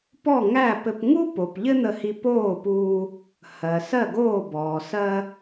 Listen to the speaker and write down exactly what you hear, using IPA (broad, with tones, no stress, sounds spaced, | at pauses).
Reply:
p ɔ˥˩ ŋ æ˥˩ p ɘ˧ p ŋ u˥ p o˩ p ʎ ɘ˥ n̪ ə˧ h i˧ p oː˥˩ p uː˧ | h ɜ˩ s ɜ˥˩ ɡ oː˥˩ b ɔː˩ s ɜ˧